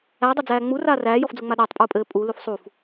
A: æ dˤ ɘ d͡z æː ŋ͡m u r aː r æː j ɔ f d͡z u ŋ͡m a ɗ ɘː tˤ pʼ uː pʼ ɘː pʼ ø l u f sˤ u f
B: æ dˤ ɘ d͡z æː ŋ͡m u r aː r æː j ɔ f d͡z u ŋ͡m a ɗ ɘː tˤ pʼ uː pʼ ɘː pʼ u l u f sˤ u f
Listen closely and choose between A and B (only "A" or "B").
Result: B